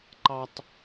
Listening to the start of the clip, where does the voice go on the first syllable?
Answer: high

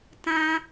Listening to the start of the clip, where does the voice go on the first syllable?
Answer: high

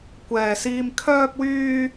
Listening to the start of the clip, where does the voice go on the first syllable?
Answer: low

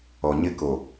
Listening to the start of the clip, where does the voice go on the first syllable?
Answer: low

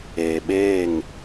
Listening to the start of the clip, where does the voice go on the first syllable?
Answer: low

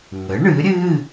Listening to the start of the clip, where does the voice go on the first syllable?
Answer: rising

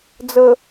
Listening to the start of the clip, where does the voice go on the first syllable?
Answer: low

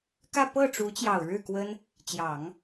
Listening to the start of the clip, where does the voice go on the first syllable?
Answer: falling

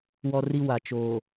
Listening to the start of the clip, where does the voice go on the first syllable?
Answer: high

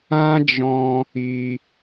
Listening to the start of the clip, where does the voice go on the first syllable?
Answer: high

